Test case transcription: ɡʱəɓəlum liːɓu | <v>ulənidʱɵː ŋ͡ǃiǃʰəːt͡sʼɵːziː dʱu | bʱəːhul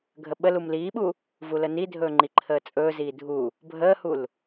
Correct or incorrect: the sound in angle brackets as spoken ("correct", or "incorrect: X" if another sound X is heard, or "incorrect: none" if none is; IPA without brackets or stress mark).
correct